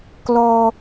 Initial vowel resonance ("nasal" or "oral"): oral